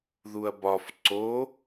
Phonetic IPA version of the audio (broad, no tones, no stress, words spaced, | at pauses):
ðuɐ̯bɒf ǀo